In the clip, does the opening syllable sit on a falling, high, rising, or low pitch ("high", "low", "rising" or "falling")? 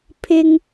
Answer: high